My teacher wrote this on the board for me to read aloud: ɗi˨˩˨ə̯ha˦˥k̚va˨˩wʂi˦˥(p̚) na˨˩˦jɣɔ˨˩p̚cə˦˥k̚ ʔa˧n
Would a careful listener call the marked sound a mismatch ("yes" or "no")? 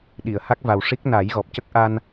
yes